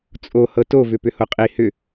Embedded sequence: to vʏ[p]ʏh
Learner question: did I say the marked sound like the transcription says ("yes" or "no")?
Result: yes